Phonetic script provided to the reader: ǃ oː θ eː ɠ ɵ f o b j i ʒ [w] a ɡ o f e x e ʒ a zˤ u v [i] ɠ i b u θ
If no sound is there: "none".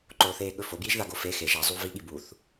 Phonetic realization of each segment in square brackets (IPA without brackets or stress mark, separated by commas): ð, i